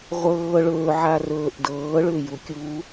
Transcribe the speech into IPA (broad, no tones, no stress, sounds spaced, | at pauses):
ʁʷ ɤː ɭ ɵː ʕ a r ɵː ʔ d ɤː ɭ ʏː j u kʲ u